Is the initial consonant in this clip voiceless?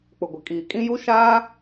yes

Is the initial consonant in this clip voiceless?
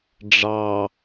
no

